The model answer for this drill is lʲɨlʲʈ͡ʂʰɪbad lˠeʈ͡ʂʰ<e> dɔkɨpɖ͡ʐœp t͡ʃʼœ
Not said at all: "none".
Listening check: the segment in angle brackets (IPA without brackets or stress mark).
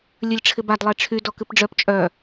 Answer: y